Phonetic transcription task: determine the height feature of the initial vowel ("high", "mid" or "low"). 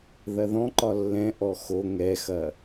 low